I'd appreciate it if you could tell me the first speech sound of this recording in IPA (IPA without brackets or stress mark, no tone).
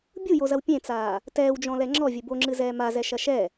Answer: bʲ